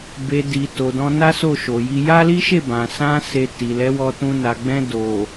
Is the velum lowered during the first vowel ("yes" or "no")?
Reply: no